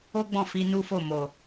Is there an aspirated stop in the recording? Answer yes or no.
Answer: no